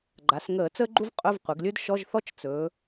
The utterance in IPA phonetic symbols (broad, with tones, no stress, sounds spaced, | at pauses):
ɡ͡ǃ a˩˧ s ŋ əː˧˩˧ t͡s əː˥ ɡ͡ǃ u˥ v qʼ ɵ˧˥˧ v qʷ ɘ˩˧ ɡ lʲ ɵ˥ d ʃ ɔ˧˥˧ ʒ θ ɔ˥ t͡ʃ t͡s ɵː˩˧